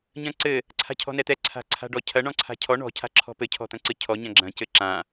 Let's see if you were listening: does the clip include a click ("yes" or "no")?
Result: yes